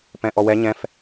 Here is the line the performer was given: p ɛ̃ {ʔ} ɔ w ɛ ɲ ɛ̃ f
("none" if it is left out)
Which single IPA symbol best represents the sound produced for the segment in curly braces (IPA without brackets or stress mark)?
ʔ